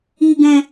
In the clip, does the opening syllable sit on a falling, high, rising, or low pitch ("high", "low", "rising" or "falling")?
low